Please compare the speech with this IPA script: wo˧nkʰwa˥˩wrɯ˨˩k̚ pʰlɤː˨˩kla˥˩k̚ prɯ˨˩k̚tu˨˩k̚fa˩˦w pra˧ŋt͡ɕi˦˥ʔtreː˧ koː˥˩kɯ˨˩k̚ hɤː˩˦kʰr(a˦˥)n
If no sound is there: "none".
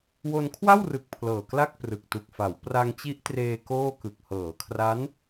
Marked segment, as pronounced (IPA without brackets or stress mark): a˦˥